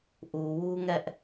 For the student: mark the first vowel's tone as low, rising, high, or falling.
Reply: low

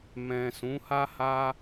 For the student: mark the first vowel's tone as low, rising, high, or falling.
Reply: low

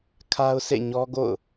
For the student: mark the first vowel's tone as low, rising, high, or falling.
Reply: high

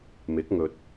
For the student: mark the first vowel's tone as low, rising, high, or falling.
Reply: rising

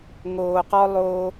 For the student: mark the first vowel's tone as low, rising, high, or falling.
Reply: low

